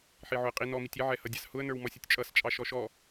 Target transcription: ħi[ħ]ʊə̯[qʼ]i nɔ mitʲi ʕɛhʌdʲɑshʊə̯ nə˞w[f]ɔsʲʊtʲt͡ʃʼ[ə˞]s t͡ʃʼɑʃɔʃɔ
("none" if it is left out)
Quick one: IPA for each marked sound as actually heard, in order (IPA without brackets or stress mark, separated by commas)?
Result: ʕ, qʼ, m, ʌ